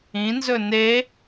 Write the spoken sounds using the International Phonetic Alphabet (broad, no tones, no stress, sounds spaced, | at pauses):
ĩ n z ɵ n e